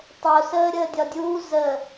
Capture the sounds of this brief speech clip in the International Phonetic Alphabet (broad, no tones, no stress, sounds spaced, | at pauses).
tˤ o s əː ɾʲ əː dʲ ɒ dʲ uː z ə